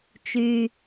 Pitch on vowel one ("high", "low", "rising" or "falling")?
low